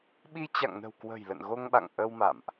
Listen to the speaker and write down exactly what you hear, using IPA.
ɓ i˧ t͡ɕ a̰˧˨ ŋ n ə̤˨˩ w k w ə̤˨˩ j l ə̰˧˨ n ɣ o˧ ŋ ɓ a̰˧˨ ŋ ʔ ə˧ w m a̰˧˨ m ʔ

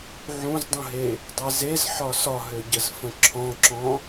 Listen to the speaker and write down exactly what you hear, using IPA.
ʕ ũ z dˤ ũ ɦ e | dˤ e z e z ħ ɒ s ɒ ɦ ø ɟ ə z f ə̃ ǁʰ ɔ̃ ǁ ɔ̃

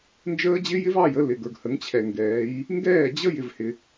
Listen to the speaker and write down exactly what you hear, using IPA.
n d͡ʒ əː˦ d͡ʑ ɪ˦ j ɪ˦ v ɑ˦˨ j ə˦ l ɪ˨ ɡ ə˞˨ ɡ h ə˨˦ ŋ t͡ɕʰ ɛ˨ ŋ ɡ ɛː˨˦ j | ŋ ɡ ɛː˦˨ d͡ʑ ə˦ j ɪ˦ v h ɪ˦

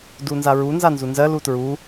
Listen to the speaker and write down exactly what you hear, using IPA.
d u n z a ɹ u n z a n z u n z ɜ l u t ɹ u

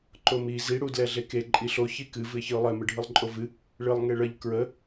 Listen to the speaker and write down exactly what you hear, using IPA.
ǃ o m i z i ɽ u d l ɛ ɮ e k e ǃʼ i ɬ o ç i k ɨ v ɨ ɪ̯ ç ɨ ʊ̯ lˠ ɛ m ɨ ɖʱ ɨ lˠ ǃʼ o v ɨ | ɭ ɨ lˠ ŋ e ɭ ə ʎ k ɹ ə

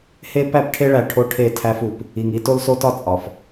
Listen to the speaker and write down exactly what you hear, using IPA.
h e˦ p æ˦ p ʈʰ e˦ ɭ æ˨ ʈʰ o˦ ʈʰ e˦˨ tʰ æ˦ f u˨ p | i˨ ŋ i˦ t o˦ l s o˦ t ɒ˦ t͡sʼ ɒ˨ f

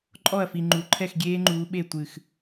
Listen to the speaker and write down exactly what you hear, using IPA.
ǃʼ ɔ˥˩ ɐ̯ f i˨ ŋ͡ǃ u˨ ǃʰ ɛ˥˩ x ɡʲ eː˦˥ ŋ͡ǃ uː˨˦ ɓ e˥˩ tʷ ɨ˥˩ x

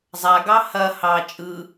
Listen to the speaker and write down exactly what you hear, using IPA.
zˤ a ɡ ɑ h ɐ h ɑ t͡ʃʼ ɯ

